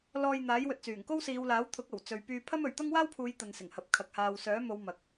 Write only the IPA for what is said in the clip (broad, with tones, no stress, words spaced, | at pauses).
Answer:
lɔː˧j n̪aː˨˥jwɵ˨t̚t͡syː˨˩ŋ ko˥wsiː˨˧wlaː˨˥wt̪ʰʊ˨˥k̚ ɐ˨˩wt͡sɵ˨ɥ pyː˧pʰɐ˥mɵ˨ɥ t̪ɐ˥ŋwaː˥wpʰuː˨˧j t̪ɐ˧nsɪ˨˩ŋhɐ˨˥p̚kʰɐ˨˥k̚ haː˨wsœː˨˥ mo˨˧w mɐ˨k̚